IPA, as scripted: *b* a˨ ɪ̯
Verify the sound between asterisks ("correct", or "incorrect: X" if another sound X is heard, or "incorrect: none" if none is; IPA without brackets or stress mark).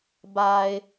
correct